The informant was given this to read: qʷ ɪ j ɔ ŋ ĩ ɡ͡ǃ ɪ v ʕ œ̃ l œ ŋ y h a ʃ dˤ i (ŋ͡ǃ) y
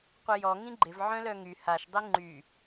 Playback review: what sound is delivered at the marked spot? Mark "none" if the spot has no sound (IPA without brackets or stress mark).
ŋ͡ǃ